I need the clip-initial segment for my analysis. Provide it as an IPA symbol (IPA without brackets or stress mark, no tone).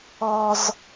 ɔ